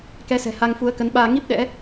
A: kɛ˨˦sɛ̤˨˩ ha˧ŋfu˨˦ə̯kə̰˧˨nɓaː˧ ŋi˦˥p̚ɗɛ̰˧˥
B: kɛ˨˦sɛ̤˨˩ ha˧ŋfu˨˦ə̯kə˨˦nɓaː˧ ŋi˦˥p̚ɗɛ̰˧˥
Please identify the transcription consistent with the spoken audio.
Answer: B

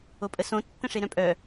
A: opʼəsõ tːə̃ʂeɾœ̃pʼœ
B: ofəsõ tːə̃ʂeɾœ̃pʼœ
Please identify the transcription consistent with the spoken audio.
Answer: A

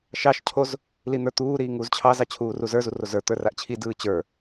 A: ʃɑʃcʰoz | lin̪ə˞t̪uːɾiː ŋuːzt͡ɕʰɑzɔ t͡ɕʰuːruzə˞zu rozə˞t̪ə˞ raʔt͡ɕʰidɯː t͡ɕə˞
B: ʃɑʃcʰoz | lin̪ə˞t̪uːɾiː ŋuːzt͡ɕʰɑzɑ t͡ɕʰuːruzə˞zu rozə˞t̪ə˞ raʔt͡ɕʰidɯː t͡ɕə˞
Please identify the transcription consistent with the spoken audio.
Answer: B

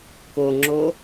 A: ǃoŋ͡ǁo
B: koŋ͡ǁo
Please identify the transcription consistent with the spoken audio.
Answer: B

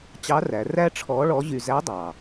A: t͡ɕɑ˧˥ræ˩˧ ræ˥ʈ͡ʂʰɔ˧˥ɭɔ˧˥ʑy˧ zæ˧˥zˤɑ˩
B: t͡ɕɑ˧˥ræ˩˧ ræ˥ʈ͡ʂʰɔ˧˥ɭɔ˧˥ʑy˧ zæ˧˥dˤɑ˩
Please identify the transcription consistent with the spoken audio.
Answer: B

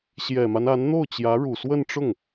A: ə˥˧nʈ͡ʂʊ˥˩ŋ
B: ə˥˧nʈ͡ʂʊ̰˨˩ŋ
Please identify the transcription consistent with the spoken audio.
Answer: A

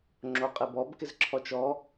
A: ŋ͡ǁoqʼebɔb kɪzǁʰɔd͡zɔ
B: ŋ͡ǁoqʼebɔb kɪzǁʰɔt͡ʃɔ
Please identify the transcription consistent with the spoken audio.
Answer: B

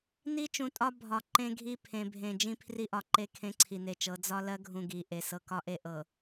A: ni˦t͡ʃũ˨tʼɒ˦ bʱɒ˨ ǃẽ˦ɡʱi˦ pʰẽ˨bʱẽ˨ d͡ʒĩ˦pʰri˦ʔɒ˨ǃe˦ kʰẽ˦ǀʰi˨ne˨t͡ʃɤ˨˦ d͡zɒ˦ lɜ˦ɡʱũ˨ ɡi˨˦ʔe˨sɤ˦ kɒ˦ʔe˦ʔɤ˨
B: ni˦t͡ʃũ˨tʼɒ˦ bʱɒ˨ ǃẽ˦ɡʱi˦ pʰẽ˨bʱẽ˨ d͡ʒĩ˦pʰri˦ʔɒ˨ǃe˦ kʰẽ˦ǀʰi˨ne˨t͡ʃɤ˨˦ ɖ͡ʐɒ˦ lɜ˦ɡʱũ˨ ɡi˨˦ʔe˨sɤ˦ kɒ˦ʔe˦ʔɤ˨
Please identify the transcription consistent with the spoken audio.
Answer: A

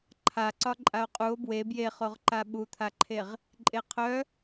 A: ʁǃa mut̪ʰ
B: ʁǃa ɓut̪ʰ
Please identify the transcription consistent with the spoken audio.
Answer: B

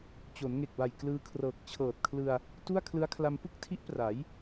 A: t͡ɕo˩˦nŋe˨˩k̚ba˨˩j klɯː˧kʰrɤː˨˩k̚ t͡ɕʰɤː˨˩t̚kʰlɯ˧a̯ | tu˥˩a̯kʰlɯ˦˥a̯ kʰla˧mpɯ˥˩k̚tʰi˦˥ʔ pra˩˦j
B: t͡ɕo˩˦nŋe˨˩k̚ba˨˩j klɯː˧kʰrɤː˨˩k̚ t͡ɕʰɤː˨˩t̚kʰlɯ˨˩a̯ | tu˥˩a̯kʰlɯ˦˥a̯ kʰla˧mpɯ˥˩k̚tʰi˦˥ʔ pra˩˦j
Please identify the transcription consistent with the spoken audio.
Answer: A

